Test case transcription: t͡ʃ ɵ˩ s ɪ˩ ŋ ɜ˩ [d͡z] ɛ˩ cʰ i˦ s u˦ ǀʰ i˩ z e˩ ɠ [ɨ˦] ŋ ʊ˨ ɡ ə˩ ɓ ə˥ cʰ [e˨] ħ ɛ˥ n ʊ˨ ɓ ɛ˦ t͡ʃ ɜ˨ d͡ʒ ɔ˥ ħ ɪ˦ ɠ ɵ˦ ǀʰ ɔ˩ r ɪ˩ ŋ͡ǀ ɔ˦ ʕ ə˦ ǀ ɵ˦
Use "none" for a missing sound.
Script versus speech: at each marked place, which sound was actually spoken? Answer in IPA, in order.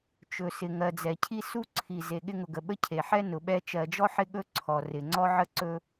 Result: d͡z, ɪ˦, e˩

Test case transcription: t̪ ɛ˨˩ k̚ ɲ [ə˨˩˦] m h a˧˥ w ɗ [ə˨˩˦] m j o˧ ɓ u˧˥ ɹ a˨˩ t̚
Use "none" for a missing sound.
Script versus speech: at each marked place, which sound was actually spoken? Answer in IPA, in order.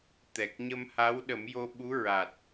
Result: ə˧, ə˨˩˦

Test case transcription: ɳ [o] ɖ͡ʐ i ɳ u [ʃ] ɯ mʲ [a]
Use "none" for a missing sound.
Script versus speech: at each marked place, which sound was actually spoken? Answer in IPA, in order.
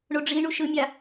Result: o, ʃ, a

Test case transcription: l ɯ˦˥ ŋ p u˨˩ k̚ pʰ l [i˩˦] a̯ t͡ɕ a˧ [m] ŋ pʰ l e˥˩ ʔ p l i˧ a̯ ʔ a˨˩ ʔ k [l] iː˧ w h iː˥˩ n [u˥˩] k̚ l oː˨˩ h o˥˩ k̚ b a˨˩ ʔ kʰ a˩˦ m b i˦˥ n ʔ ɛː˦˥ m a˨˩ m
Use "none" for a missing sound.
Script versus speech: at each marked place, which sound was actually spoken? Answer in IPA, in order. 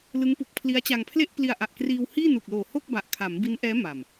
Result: i˦˥, none, r, u˨˩

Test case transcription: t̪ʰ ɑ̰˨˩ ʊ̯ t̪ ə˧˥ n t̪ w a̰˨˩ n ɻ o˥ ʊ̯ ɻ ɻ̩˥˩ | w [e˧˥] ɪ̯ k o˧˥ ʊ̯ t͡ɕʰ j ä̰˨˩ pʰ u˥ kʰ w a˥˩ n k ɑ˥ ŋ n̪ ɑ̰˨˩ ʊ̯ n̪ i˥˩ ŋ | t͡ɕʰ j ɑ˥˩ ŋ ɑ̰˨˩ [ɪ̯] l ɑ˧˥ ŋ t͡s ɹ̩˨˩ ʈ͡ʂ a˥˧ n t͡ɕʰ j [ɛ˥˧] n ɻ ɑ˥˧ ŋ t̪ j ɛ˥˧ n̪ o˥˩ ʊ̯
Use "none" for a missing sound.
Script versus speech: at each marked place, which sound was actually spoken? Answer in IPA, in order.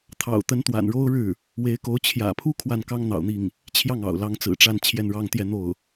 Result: e˧˥, ʊ̯, ɛ˥˧

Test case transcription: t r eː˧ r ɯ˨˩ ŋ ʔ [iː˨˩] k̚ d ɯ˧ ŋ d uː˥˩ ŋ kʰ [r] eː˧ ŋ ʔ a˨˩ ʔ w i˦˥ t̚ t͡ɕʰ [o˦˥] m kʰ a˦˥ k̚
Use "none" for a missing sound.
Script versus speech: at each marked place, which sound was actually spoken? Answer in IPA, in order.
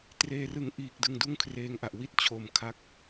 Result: iː˨˩, r, o˨˩

